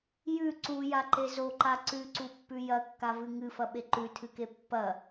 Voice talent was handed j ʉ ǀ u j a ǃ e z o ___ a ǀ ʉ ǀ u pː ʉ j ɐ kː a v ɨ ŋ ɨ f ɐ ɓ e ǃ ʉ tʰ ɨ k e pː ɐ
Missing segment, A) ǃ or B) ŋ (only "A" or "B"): A